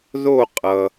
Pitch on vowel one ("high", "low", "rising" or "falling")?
falling